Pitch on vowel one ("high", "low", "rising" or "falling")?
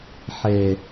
low